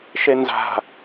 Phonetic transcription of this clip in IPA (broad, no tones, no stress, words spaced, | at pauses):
ʃenza̤